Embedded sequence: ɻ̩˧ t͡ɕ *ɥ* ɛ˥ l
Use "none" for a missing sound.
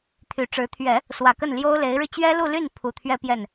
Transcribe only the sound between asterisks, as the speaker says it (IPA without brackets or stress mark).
ɥ